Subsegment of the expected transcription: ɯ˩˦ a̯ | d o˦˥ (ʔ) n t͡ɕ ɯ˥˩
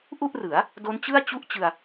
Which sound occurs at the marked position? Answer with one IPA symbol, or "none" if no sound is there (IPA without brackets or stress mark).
none